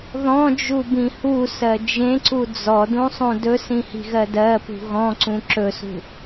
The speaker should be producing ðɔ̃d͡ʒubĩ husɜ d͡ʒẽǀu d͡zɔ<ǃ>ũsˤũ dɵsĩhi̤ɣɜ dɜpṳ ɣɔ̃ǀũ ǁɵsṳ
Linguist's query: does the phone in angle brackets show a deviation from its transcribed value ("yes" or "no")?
yes